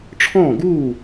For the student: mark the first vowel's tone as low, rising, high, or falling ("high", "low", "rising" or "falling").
falling